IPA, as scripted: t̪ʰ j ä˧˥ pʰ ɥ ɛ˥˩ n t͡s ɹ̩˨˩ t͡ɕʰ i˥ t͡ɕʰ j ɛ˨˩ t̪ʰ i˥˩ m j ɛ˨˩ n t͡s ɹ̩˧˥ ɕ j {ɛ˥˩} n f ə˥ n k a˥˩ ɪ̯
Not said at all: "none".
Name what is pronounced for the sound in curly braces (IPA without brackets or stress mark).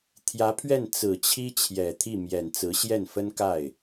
ɛ˥˩